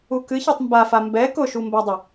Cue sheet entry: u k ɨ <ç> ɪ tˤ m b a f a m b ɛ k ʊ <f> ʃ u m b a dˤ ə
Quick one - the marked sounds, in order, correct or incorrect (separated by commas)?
correct, incorrect